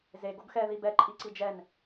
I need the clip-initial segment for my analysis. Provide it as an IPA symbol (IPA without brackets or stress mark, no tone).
z